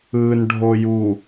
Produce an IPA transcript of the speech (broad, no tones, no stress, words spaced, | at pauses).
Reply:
ɯnɖʱoju